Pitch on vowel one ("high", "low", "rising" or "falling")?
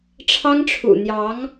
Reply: high